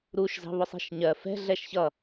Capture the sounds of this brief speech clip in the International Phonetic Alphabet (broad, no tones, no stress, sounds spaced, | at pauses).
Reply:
ɾ u ʃ z ɑ̤ β ʊ sˤ i̤ ʃ ɲ ɜ f ɛ̤ ɮ ɛ ʃ ç ʌ